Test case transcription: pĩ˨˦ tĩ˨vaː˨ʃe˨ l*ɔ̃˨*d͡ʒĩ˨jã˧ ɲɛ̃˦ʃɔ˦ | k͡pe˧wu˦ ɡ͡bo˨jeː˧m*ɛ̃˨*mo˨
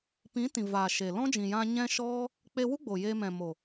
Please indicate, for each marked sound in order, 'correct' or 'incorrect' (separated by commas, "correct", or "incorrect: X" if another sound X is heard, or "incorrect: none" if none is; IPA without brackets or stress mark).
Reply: incorrect: ɔ̃˦, correct